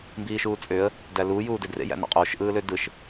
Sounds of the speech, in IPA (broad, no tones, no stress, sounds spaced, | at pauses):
m b iː ʃ uː t͡sʼ ø ə̯ | d æ l uː j uː d e d r ḛ j æ̰ n ɑ̰ qʼ oː ʃ ʔ ɯː l ø d ɯ ʃ